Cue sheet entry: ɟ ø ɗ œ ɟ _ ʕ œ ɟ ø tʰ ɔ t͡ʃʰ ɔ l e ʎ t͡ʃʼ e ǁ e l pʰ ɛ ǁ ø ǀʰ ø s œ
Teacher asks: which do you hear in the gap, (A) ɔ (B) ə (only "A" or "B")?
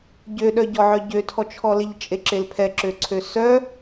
A